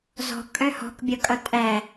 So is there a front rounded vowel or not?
yes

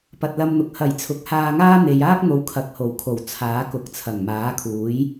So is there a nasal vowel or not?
no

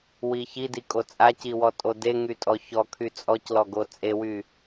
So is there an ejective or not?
yes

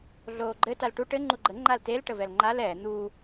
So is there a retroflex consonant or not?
yes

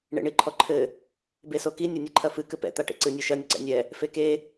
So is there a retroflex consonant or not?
yes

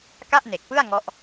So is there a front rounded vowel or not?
no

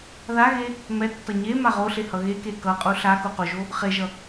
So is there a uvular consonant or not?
yes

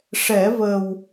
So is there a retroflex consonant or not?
yes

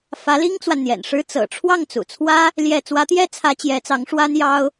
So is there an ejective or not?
no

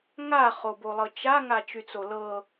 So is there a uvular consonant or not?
yes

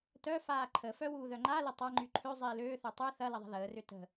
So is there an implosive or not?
no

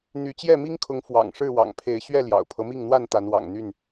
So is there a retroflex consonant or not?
yes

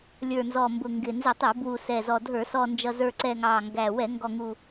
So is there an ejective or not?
no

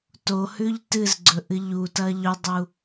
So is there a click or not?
yes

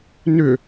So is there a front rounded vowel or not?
yes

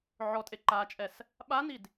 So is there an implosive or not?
yes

